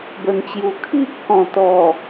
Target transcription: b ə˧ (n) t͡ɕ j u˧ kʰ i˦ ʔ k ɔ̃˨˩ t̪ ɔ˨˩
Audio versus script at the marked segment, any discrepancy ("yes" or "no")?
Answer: no